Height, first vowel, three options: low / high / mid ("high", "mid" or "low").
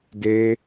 mid